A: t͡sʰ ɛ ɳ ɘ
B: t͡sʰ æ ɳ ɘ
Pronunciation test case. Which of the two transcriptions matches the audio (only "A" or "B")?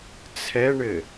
A